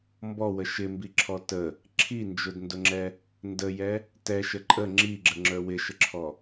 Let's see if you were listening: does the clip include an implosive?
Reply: no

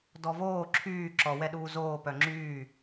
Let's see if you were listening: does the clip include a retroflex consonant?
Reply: no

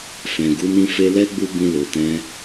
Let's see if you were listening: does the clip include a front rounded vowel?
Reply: no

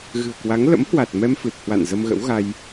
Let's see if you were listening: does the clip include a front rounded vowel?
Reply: no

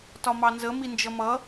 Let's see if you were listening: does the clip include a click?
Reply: no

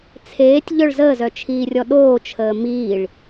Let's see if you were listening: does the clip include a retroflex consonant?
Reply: yes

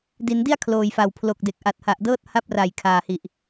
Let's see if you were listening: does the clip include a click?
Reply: no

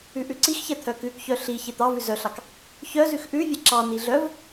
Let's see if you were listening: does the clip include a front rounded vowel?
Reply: yes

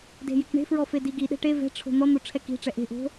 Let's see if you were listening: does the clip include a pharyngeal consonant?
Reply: no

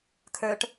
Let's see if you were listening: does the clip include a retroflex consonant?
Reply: yes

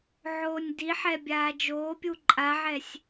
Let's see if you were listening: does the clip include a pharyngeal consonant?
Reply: yes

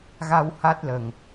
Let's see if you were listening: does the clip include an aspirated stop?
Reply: no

